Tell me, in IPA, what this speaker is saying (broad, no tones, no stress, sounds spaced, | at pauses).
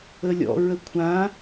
ə lʲ ɔ̰ ɹ ə kʷʰ ã